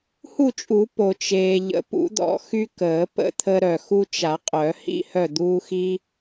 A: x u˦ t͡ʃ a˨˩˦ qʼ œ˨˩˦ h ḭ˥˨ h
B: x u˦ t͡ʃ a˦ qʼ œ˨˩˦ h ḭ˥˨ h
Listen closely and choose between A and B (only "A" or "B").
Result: A